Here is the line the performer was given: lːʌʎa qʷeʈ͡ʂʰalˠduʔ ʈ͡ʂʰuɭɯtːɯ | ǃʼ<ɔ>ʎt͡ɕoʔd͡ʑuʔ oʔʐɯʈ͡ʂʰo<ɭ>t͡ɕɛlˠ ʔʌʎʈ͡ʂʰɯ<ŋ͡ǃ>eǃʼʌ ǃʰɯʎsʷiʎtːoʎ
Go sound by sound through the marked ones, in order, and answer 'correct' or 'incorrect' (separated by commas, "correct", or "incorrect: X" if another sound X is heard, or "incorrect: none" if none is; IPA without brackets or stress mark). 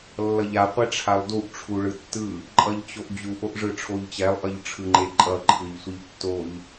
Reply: incorrect: ʌ, incorrect: ʎ, correct